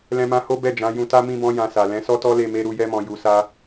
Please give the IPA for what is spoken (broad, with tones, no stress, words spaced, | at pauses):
lɛ̃˧mã˧ ho˦bɛ˦˨ d͡ʒã˨˦jũ˧ta˦ mĩ˦bɔ̃˦ jã˧sa˨ lɛ̃˨˦sɔ˦tɔ˦ le˦˨me˧ ɾu˨jɛ˧mɔ̃˨ ju˨sa˧